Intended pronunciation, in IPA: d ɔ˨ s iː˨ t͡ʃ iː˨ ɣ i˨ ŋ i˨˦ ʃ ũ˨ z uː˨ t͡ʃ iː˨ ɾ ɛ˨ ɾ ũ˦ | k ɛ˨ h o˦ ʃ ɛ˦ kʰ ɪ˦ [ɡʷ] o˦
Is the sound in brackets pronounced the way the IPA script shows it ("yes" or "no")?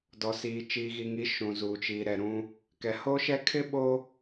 no